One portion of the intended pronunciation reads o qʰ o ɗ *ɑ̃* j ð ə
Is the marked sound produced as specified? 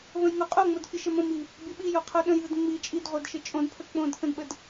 no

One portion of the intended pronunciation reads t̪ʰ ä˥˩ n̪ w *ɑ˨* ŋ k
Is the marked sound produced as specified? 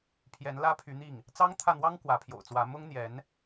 no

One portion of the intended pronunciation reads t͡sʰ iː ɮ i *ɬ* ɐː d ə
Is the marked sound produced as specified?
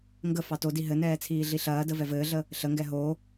yes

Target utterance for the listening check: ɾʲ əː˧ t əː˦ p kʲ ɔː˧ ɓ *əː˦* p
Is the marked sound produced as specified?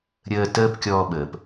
no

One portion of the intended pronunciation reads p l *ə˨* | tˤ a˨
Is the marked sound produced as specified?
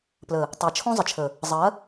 yes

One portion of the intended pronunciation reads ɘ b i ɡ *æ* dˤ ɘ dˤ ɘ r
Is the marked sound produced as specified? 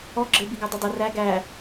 yes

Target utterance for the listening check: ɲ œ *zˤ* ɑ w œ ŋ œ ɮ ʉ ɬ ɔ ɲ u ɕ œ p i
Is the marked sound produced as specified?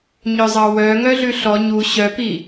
yes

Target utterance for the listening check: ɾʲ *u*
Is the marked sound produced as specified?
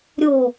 no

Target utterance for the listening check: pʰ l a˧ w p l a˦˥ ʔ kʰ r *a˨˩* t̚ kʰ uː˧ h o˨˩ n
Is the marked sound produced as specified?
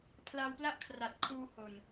yes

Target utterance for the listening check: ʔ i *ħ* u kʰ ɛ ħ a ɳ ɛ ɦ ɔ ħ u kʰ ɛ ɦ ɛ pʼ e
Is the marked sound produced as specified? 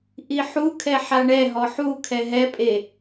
yes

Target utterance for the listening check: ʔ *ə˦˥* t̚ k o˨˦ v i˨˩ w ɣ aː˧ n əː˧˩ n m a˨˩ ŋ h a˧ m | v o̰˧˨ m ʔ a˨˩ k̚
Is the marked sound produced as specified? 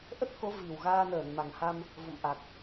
yes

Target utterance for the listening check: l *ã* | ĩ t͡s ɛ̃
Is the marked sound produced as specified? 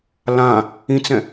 yes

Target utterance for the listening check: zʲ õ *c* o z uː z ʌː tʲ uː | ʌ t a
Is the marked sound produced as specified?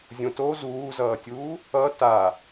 no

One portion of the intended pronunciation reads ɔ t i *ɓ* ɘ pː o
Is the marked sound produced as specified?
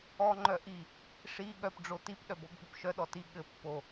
no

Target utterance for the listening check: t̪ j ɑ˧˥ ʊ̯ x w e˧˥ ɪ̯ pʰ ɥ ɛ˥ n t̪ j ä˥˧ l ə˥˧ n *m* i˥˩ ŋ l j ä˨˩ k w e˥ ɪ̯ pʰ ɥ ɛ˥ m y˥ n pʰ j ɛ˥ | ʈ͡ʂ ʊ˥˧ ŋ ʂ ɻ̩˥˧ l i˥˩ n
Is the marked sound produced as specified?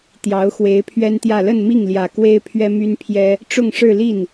yes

